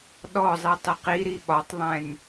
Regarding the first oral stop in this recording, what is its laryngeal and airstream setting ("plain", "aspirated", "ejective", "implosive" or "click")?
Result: implosive